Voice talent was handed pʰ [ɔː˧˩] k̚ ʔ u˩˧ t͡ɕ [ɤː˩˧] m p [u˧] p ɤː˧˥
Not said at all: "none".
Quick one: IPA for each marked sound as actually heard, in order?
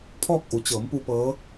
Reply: ɔː˥˨, ɤː˩˧, u˧

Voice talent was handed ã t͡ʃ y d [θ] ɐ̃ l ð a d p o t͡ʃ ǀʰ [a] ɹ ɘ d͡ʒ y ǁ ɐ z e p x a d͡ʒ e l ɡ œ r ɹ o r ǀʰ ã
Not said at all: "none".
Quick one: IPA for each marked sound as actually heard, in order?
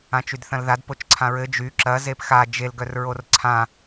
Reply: θ, ã

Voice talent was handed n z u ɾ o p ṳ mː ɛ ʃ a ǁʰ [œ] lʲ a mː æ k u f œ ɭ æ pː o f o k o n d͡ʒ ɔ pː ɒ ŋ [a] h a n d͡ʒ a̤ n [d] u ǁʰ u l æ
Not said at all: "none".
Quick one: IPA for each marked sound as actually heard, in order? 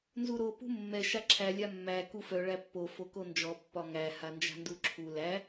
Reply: æ, æ, d

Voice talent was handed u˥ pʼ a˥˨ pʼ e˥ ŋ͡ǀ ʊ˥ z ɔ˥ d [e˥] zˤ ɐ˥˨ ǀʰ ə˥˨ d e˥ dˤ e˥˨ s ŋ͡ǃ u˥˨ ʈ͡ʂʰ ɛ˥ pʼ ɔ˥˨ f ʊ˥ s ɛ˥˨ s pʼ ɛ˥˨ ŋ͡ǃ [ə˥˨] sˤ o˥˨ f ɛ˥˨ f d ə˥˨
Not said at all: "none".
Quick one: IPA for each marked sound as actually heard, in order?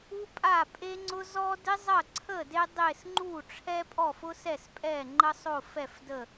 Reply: e˥, ə˥

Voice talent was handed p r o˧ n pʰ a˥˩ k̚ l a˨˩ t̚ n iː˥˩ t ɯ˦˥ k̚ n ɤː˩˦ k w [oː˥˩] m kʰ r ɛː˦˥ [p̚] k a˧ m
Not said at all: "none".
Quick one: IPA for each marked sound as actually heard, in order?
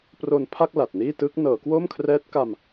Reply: oː˥˩, t̚

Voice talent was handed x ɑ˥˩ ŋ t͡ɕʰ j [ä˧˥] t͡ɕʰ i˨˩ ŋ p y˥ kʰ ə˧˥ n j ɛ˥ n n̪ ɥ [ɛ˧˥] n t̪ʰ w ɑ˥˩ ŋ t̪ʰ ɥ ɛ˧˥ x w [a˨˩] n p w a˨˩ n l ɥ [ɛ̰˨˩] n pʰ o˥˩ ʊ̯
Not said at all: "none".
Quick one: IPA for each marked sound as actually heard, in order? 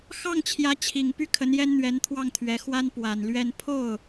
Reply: ä˧˥, ɛ˧˥, a˥, ɛ˥˧

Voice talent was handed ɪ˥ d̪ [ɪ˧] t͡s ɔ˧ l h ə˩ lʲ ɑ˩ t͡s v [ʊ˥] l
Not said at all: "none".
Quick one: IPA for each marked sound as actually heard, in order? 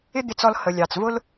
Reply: ɪ˧, ʊ˥

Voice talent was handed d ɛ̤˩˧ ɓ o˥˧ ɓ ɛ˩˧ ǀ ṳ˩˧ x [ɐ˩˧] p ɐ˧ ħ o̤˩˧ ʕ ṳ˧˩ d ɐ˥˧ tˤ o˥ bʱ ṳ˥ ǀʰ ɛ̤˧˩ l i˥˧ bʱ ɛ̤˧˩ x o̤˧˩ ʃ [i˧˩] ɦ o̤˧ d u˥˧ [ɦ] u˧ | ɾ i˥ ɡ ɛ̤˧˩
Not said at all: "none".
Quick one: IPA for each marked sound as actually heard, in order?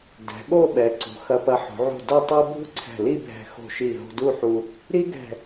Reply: ɐ˧, i˧˩, ħ

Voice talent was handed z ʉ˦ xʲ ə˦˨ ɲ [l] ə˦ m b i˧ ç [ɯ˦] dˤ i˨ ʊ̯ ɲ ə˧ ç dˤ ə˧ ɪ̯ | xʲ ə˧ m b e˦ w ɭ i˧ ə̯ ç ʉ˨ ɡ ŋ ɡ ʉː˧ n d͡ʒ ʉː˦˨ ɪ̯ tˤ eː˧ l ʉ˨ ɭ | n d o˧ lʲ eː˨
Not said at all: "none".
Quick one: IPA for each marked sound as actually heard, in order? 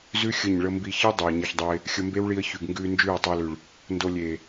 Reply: ɭ, ɯ˦

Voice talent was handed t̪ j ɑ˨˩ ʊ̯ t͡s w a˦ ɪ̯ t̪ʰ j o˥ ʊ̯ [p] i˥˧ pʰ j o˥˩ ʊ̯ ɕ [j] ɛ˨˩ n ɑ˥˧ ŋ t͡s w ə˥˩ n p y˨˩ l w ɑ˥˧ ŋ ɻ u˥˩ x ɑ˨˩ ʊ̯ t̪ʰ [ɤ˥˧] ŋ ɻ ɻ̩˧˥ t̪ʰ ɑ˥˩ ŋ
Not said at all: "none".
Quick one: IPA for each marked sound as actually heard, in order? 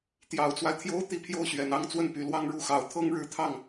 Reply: t̪, ɥ, ɤ˥

